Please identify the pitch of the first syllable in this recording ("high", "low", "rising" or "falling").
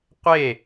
falling